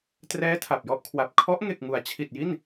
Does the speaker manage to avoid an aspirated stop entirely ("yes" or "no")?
no